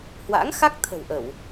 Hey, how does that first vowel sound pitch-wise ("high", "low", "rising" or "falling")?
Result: rising